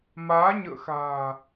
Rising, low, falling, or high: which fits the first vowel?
rising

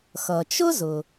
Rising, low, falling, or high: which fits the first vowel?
low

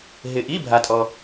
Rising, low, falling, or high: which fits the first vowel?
low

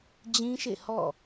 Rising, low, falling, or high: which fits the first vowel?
high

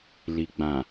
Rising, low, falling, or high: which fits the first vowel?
low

